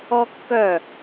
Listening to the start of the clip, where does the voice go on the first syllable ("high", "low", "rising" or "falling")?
high